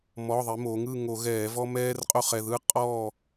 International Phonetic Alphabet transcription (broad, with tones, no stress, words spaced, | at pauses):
mɔ˩˧˩ðˤi˩˧ mo˩˧ŋɯ˥˨ŋo˧˩˧ɣɛː˧˩˧ vɔ˦mɛː˦rqʼo˦ χɛ˩˧˩ðɯː˦ qʼɔː˥˨